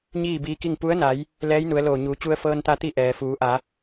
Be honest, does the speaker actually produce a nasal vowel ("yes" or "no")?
no